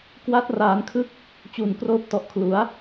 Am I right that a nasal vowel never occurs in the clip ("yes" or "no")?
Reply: yes